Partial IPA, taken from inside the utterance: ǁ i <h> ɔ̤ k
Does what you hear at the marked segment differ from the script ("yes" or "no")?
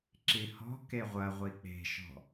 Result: no